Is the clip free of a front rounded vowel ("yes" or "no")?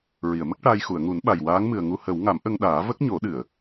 yes